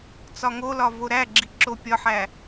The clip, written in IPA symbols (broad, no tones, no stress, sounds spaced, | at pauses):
t͡s ɒ ŋ o l ɒ v o ɾ æ ɡ͡ǁ i ǁ o pʲ ɒ ħ æ